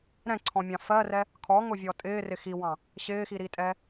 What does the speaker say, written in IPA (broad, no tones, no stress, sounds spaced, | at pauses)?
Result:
ɾ ɛ̃ ǀʰ ɔ̃ mʲ ɑ̃ f ɜ r ɛ | kʰ ɔ ŋ ʊ vʲ ɔ tʼ ɪː r ɪ x i w ɑ̃ | ɕ ɪː x i ɾ i tʼ ɛ